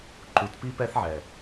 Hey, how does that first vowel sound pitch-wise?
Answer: low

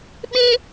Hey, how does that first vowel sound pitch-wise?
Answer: high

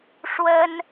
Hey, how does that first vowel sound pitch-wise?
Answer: high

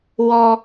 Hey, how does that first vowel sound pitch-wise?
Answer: high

